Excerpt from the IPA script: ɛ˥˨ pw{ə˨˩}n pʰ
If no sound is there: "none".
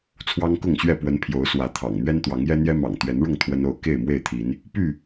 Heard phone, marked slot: ə˨˦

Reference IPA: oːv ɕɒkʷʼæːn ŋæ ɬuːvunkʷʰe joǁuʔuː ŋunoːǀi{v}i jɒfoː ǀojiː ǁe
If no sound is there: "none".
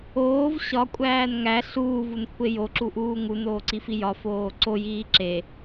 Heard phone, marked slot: f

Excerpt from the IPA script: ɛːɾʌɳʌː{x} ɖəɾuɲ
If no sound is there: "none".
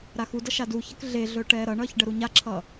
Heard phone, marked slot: ç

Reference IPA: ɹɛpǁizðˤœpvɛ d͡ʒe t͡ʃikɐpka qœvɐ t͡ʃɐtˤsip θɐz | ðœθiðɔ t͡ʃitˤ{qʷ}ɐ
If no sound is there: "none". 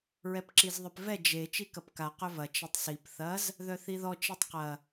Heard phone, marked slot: q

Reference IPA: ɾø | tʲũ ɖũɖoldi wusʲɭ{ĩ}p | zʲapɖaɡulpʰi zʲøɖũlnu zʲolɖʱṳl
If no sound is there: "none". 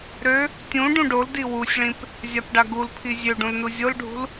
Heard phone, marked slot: ĩ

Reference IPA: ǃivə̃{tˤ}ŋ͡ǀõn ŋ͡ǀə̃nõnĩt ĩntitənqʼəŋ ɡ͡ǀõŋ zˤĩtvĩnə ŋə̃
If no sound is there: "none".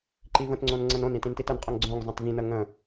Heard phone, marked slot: t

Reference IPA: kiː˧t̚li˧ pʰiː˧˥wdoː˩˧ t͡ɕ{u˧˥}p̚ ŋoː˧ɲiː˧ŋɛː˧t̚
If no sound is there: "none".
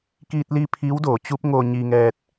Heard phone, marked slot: u˧˥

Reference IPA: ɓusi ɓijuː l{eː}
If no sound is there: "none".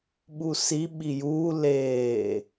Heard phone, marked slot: eː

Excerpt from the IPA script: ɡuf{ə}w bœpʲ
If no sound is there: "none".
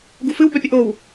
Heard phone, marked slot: ɨ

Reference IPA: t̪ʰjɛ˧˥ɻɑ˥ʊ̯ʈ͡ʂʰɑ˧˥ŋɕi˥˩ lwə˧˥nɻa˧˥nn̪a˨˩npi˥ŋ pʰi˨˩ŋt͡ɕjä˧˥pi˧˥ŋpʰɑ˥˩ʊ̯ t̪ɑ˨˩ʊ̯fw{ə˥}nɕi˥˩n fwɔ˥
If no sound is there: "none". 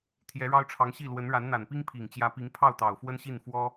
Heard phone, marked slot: ə˥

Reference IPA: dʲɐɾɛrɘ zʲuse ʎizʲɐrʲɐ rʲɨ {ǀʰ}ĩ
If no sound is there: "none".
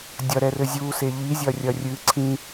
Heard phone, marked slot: ǀʰ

